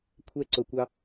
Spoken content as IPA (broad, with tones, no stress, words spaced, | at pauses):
kʷʰɛ˧ǀʊ˩ kʷɑ˧